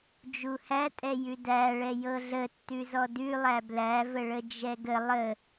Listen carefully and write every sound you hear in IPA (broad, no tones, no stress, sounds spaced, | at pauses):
d͡ʒ u h æ tʼ ɛ j ʉ d æ ɭ ɛ j ɤ ɮ ə tː ʉ z ɔ d ʉ lˠ æ b l æ v ə ɭ ə d͡ʒ ɛ ɡ ə lˠ ə